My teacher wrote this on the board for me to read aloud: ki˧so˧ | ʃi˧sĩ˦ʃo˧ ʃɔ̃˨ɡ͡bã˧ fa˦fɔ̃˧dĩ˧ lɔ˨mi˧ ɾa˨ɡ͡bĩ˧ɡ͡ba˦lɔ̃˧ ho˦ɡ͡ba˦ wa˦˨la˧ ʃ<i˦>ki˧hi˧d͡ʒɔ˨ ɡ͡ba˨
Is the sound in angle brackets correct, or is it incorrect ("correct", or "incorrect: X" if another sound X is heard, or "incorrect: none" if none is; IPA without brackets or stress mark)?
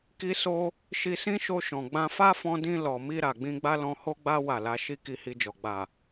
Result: correct